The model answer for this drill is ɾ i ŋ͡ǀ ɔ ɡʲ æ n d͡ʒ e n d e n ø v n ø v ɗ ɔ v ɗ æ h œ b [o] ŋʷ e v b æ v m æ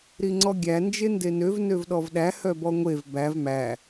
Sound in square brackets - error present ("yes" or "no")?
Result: yes